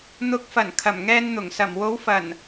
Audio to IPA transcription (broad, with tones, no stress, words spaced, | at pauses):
n̪ʊ˨˥k̚fɐ˨˩n kʰɐ˨˩mŋɛː˧nn̪ʊ˨˩ŋ sɐ˨˩mwo˨˥wfɐ˨˩n